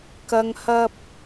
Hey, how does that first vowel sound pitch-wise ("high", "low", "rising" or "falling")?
low